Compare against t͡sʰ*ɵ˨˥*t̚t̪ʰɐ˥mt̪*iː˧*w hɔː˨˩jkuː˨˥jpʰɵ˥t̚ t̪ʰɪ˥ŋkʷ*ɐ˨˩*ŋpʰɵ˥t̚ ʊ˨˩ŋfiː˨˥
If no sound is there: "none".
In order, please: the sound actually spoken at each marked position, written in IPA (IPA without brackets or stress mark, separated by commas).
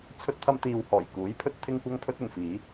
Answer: ɵ˥, iː˧, ɐ˥